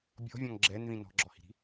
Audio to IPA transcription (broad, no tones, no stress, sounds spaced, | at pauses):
bʲ ɔ̤ vʲ ɔ̃ ŋ ɡ͡ǁ ɛ n ð ĩ n ɔ̤ ɡ͡ǁ ɔ h i̤ ɾ i̤